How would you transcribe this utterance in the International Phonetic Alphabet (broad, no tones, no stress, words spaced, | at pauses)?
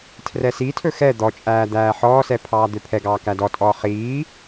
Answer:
tʰrɛsitʰɵ xɛ d̪ɔt͡ʃʼæː d̪æːħɔːsɛ pʰɑːd̪øpʰɛɡɑː kædɔtʼɔː χiː